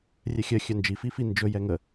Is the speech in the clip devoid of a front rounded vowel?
no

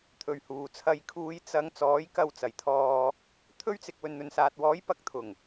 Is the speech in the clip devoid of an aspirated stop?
no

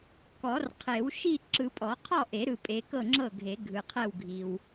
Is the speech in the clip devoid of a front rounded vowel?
yes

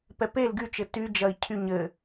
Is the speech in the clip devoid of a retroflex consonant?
yes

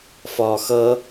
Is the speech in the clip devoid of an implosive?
yes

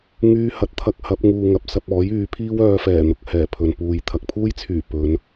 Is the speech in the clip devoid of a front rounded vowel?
no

